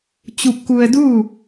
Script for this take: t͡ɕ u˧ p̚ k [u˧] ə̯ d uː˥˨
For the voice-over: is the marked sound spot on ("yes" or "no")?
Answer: yes